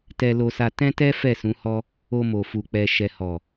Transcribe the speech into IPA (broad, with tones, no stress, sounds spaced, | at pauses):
t ɛ˧ l o˧ s a˧ t ɛ̃˦ t ɛ˦ f ɛ˦˨ s ũ˨˦ h ɔ˦ | o˧ m o˨ f u˨ k͡p ɛ˨ ʃ ɛ˨ h ɔ˨